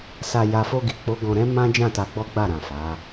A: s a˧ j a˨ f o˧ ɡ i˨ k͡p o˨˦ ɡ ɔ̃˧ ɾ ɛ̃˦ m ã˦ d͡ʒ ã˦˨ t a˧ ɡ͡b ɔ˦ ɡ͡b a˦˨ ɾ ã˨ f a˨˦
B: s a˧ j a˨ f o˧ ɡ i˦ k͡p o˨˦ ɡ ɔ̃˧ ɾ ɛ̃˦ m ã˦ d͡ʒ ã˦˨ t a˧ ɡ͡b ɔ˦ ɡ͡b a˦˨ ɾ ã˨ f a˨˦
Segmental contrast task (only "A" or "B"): A